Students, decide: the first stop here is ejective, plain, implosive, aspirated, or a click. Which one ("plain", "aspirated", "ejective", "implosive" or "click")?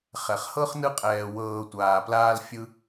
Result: ejective